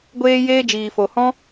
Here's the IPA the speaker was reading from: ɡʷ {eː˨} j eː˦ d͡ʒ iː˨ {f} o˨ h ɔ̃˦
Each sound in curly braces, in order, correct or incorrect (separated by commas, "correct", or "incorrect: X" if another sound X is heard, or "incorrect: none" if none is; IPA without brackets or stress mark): incorrect: eː˦, correct